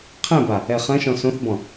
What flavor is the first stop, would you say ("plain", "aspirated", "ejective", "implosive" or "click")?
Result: aspirated